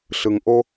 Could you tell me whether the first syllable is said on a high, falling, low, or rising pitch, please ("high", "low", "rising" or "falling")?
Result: low